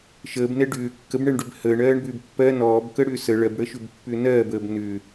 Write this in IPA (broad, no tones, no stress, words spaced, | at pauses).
ʃəːbnɛ ɖʏː kːəbɳɛɳɖʏb həːɳɜːɳbʏːb pːɜ nɔːbkəɽʏː sə ɭɜbɽəʃʏbpːʏː nɜːbəːb nʏ